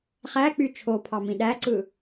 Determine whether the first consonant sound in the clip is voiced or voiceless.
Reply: voiceless